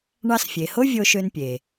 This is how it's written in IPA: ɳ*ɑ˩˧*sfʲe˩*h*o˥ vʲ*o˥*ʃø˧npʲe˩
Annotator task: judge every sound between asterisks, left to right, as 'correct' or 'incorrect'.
incorrect, correct, incorrect

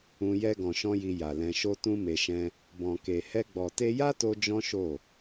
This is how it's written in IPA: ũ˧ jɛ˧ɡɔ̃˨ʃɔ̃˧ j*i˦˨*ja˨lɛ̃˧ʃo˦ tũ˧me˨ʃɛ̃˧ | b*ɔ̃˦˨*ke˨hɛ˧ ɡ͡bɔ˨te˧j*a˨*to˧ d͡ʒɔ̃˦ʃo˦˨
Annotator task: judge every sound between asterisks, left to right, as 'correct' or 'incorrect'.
incorrect, incorrect, incorrect

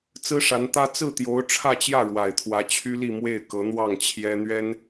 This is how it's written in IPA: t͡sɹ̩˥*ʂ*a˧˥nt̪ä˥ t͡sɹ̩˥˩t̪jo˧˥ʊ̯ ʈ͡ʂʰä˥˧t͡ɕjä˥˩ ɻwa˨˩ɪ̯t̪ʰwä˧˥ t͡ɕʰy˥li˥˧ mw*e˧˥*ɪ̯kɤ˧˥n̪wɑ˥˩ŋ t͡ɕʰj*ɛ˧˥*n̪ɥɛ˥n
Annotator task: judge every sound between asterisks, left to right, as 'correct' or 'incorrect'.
correct, incorrect, incorrect

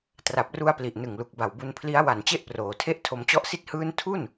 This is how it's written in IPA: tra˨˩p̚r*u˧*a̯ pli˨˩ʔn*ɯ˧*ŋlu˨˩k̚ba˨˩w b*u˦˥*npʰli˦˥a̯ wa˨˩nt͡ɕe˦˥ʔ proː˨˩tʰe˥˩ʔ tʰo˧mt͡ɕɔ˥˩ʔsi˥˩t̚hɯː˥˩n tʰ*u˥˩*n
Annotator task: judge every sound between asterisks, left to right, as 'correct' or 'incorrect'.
correct, incorrect, incorrect, correct

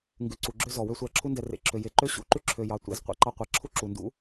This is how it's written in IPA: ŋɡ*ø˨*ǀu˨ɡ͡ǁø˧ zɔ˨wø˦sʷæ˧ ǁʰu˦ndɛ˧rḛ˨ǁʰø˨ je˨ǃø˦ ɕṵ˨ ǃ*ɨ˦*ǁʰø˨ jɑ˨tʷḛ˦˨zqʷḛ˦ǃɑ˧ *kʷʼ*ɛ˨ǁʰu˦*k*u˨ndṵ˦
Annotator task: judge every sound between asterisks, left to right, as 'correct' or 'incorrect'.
incorrect, incorrect, incorrect, incorrect

